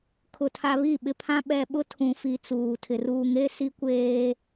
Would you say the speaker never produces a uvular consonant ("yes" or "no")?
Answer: yes